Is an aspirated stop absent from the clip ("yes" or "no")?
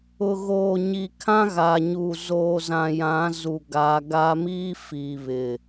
no